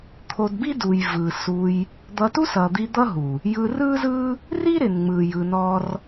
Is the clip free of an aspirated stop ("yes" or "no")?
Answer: no